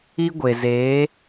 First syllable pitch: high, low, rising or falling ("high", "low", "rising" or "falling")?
high